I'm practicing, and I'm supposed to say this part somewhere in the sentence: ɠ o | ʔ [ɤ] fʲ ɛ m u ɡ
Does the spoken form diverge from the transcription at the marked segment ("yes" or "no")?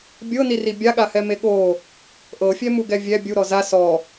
no